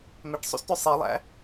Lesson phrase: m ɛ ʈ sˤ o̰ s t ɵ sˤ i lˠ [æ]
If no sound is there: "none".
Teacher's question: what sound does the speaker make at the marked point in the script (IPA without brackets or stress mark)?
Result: æ̰